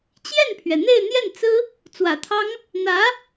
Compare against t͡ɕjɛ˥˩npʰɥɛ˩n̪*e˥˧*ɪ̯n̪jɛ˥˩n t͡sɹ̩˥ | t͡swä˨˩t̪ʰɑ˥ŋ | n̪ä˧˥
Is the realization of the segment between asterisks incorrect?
no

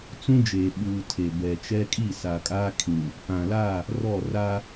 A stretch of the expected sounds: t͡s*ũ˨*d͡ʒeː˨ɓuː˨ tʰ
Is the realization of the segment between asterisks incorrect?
yes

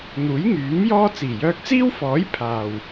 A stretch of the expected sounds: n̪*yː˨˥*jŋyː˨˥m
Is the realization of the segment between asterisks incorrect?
yes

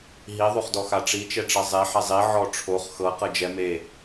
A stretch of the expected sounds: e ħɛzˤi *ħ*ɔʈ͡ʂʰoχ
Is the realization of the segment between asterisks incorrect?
yes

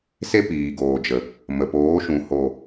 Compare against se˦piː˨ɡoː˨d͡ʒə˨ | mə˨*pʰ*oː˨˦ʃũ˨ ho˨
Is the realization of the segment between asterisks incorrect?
yes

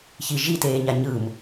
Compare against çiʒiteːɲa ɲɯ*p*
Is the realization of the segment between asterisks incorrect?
yes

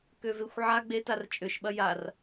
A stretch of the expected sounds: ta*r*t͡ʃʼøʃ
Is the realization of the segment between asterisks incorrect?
no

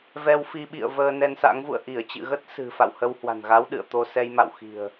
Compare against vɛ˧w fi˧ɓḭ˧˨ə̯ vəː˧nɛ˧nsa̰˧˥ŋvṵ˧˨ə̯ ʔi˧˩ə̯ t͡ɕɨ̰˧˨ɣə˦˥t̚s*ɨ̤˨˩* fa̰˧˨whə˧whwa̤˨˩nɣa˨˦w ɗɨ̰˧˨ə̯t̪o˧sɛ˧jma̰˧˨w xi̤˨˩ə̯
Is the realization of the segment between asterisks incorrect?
no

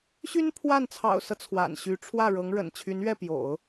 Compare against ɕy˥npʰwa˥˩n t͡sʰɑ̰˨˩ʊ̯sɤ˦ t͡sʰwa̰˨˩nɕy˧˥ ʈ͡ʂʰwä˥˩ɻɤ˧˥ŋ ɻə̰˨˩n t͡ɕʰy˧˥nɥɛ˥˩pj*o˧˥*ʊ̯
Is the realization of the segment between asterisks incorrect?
yes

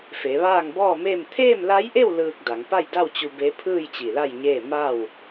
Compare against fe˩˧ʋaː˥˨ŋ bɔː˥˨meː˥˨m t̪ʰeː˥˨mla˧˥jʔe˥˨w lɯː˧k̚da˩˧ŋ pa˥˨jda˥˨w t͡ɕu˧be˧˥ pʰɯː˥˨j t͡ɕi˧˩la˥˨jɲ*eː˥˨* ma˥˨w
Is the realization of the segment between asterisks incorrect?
no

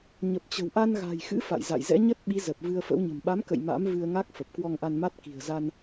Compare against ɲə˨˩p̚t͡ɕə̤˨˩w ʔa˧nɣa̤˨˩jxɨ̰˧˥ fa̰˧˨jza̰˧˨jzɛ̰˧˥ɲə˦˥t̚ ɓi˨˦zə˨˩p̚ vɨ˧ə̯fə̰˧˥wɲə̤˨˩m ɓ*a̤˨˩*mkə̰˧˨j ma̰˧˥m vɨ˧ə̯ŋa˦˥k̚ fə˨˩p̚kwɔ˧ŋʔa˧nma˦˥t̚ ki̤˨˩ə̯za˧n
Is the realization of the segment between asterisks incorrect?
yes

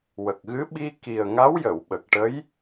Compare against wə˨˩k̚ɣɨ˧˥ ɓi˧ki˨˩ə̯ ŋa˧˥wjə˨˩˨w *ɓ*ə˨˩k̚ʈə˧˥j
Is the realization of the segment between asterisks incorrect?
no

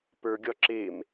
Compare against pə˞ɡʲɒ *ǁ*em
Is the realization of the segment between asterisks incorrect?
no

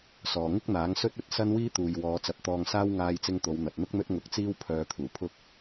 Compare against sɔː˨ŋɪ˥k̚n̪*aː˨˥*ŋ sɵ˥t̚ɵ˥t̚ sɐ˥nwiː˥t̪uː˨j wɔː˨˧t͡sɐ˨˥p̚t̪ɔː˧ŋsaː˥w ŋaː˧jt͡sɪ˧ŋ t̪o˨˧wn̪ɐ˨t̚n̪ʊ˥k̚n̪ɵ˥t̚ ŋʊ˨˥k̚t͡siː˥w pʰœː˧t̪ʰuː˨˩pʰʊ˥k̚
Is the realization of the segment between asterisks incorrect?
no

